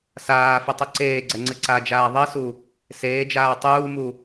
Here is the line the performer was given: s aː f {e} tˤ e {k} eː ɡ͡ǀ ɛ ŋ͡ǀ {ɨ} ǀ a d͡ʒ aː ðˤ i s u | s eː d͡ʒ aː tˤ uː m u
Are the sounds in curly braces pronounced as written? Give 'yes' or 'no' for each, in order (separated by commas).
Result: no, no, yes